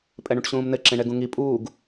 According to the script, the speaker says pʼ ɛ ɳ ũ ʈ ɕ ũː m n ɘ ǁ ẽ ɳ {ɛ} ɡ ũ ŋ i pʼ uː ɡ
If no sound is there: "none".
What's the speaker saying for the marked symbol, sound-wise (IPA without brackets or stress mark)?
ɛ